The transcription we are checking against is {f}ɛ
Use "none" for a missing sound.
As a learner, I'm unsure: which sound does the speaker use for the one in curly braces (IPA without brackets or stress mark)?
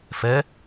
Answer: f